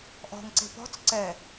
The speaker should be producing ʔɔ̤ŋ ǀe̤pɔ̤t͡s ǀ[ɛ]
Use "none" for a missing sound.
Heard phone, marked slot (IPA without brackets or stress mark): ɛ